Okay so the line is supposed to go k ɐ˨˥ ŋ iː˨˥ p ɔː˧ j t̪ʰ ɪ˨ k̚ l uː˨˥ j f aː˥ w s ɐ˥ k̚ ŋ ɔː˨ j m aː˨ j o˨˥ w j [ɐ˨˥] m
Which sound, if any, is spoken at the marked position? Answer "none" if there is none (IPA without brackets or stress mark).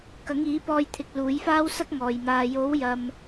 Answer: ɐ˨